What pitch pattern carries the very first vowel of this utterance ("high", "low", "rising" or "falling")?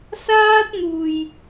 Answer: high